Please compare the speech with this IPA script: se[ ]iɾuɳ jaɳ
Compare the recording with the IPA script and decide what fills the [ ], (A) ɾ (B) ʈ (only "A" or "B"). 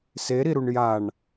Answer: A